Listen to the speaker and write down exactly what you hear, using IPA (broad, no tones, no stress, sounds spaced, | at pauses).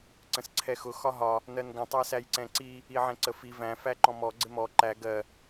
ǀ ə̃ s ǀʰ ɛ x ʊ x ɒ ɦ ɒ | n ɜ n ɡ ə̃ tˤ æ s æ j ǀ ɛ̃ ǀ i | i ʕ ɛ̃ ǀ ə f i v æ̃ f æ ǃ ɔ̃ m ɔ ɡ͡ǀ ɪ m ɔ ǃ æ ɡ ɜ